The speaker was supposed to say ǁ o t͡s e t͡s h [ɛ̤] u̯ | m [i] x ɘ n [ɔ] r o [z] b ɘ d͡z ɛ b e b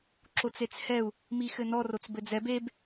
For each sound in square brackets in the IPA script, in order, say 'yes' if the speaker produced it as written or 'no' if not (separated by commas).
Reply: no, yes, yes, no